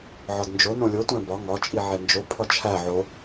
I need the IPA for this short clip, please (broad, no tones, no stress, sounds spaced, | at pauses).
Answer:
ʕ ɒ d n d͡ʒ o n õ lʲ o tʷ æ̃ b ɒ ŋ ɒ t͡ʃʼ i ʕ e n d͡ʒ o pʰ ɒ t͡ʃʰ æ ʕ o